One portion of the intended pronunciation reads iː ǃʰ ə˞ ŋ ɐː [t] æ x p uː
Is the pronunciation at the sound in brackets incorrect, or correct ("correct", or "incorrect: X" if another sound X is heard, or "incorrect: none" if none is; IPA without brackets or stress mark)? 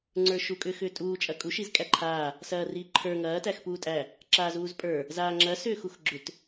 correct